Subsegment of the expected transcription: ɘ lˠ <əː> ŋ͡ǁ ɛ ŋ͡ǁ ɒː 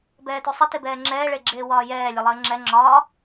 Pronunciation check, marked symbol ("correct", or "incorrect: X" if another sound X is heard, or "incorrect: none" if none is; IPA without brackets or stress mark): correct